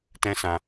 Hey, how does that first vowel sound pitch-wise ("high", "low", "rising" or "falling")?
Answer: high